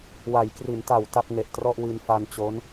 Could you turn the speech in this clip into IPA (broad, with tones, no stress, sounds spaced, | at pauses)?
w a˩˦ j k r i˩˦ n t a˨˩ w t a˥˩ p̚ ŋ e˨˩ ʔ t r ɔ˥˩ ʔ w i˧ n f a˧ n t͡ɕ o˦˥ n